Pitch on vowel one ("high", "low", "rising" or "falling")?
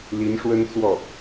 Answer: rising